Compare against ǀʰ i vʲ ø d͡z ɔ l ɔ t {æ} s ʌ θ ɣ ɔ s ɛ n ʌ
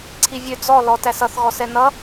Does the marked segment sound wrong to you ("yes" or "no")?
no